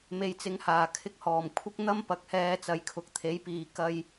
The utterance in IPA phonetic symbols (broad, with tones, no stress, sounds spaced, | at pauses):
m e˨ j t͡s ɪ˨˥ ŋ h aː˨˩ kʰ ɪ˧ k̚ h ɔː˨˩ m kʷʰ ɪ˥ k̚ n̪ ɐ˥ m p ɐ˨ k̚ h ɛː˧ t͡s ɐ˨˥ j kʰ ʊ˨ k̚ t̪ʰ e˨˥ j p iː˨ k ɐ˧ j